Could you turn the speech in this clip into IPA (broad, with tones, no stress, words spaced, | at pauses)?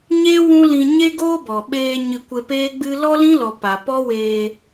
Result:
ɲe˦ wũ˦lĩ˧ ɲe˦ɡoː˦bɔ˨ ɓeː˧ ɲɨ˧kʷe˧peː˦ɡ͡bɨ˦ lɔ˦lĩ˦lɔ˨ pa˨pɔ˦weː˧